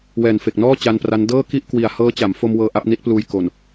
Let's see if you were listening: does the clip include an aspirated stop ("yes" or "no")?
no